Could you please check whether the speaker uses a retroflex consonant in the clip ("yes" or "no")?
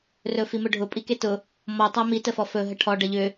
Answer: yes